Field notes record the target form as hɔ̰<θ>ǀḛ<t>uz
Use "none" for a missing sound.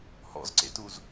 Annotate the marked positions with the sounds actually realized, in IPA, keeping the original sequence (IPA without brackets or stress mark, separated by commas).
z, t